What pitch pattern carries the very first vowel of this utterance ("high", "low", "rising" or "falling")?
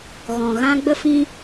low